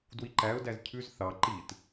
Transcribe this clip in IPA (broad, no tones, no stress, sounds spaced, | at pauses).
d w i ǃ æ ʊ̯ d æ z cʰ ʉ z θ ɑ ǃ i t